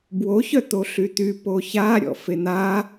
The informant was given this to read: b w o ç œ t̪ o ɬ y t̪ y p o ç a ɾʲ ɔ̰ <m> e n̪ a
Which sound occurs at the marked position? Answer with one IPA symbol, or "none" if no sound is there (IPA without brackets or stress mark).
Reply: f